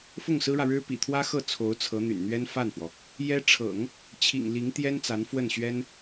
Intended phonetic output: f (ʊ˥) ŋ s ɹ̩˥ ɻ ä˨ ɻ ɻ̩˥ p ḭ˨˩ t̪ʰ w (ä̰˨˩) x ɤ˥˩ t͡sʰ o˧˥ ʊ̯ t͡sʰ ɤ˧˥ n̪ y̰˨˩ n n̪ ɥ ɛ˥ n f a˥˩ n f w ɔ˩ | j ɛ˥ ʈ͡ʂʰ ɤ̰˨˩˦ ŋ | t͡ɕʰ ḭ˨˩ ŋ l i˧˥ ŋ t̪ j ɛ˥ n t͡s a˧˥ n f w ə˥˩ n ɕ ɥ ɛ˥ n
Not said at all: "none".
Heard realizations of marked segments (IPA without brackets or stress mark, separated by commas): ʊ˥˩, ä˥